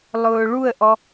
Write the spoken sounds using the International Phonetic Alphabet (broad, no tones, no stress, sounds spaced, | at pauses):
lˠ ʊː ɭ u ə̯ ʔ ɔ